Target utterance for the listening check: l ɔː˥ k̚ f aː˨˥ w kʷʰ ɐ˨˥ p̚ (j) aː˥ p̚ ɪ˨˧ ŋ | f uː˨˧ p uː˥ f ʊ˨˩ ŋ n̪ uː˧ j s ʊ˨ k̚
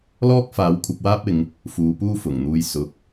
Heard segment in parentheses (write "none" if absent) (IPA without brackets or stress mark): w